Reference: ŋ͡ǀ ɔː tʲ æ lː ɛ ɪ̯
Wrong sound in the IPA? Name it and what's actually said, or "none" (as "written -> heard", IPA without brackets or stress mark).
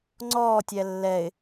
none